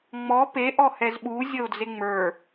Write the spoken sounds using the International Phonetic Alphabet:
ŋ͡m ɔ p e ʔ ɔ h ɛ z ɓ u zʲ ə ʊ̯ d͡z e ŋ͡m ə˞

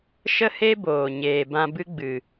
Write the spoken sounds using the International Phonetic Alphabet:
ʃ ə˦ h e˦ b oː˨ ɲ eː˨ b ã˧ b ɨ˦ ɡ͡b ɨ˨

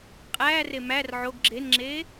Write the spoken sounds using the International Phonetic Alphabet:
qʼ æː r e m æ r ʕ o ɡ ɡ͡ǁ e n ŋ͡ǁ eː

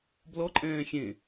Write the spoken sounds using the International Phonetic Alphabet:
b l ɔ ǃʼ ɛ̃ː xʲ ẽ

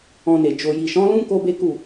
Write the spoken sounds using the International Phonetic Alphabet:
ɔ̃˧ n e˨ d͡ʒ o˨ j i˨ ʃ ɔ̃˨˦ l ũ˦ k o˦ b e˦ k u˦˨

